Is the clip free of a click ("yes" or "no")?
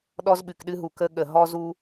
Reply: yes